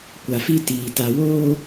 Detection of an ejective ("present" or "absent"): absent